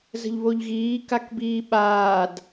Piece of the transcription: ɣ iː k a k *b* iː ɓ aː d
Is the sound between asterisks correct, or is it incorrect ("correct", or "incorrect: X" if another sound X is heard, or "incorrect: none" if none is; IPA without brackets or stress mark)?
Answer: correct